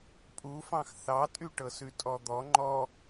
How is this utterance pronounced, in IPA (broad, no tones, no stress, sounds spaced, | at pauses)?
pʼ u f ɑ̃ x θ ɑ tʼ y ʈ ɤ s ʉ tʼ ɔ d̪ ɔ ŋ͡ǃ ɔ